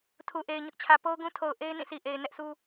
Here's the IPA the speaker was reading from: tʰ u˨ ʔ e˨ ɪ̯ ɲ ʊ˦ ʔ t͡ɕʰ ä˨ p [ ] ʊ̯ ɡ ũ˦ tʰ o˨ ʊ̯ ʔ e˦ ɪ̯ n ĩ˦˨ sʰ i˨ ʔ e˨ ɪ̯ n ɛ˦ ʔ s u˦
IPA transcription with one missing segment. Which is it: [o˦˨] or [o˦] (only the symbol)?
o˦